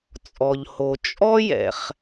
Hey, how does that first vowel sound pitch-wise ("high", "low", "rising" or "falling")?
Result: low